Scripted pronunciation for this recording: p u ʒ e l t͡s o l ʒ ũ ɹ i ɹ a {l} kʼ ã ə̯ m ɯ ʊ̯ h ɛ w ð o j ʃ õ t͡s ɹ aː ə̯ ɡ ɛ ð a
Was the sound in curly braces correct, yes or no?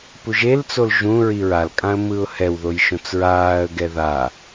yes